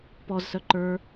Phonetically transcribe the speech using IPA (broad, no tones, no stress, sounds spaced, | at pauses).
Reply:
p ɔ z s œ ǃ ə˞